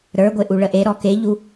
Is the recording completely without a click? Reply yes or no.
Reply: yes